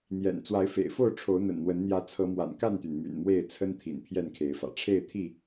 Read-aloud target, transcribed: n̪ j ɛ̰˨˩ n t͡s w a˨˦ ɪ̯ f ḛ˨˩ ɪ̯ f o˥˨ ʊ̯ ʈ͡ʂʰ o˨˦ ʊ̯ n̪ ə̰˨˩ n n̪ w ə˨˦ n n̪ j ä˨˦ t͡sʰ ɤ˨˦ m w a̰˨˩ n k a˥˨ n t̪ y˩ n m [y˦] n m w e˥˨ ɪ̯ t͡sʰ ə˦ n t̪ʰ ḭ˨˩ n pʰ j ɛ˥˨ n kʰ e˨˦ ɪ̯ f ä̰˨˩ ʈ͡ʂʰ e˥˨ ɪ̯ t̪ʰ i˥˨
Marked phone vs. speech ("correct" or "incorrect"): incorrect